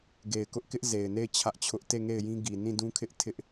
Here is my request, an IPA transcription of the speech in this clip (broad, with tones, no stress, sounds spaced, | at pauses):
ɡ e˨ ɪ̯ k ʊ˦ ʔ k ɪ˦ ʔ z e˨ ɪ̯ n e˦˨ ɪ̯ t͡ɕʰ ä˦ ʔ t͡ɕʰ ʊ˦ ʔ t e˦˨ ŋ e˦˨ ɪ̯ j ĩ˦ ɡ i˨ n ĩ˦˨ d ũ˦ kʰ ɪ˦ ʔ tʰ ɪ˦ ʔ